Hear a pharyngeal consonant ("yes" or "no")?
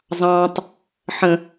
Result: yes